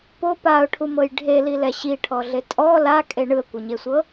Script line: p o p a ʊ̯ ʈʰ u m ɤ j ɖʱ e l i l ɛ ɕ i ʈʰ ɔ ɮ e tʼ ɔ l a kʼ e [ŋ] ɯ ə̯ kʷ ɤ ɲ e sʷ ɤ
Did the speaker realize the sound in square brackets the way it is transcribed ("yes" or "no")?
no